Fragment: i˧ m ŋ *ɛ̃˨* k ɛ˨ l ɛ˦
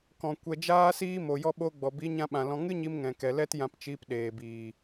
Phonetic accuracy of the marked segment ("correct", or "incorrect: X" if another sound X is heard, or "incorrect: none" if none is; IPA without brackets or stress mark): correct